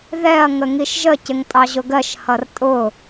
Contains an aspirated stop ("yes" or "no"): no